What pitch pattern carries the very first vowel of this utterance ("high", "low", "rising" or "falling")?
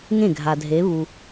falling